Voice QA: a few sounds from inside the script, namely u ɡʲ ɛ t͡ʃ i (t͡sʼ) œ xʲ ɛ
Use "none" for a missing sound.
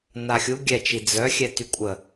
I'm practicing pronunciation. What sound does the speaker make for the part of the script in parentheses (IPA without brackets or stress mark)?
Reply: d͡z